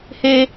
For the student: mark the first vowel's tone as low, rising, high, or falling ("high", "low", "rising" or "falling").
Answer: low